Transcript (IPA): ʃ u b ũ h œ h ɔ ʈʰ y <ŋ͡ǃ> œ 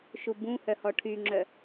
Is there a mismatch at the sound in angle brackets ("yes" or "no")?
yes